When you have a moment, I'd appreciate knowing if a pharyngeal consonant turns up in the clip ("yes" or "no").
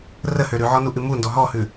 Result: yes